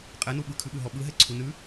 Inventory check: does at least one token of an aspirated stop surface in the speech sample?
yes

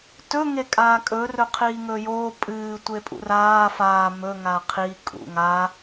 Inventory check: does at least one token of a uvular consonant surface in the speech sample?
yes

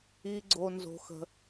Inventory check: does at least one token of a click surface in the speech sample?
yes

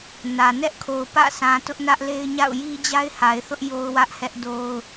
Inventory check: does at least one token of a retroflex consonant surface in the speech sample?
no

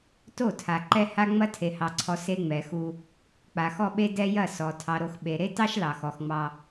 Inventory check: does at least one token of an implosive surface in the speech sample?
yes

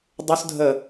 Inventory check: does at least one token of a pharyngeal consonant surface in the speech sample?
no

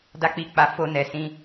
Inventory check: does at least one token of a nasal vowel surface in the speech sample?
yes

